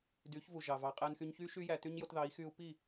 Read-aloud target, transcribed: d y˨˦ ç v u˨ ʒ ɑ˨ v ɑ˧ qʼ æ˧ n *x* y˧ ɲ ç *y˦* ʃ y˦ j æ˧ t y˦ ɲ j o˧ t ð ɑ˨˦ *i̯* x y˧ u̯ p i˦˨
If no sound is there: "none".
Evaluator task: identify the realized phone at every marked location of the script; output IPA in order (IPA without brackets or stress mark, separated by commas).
x, y˦, i̯